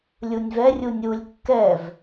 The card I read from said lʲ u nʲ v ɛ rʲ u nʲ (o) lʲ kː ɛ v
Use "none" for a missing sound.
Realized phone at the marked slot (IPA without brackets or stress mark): u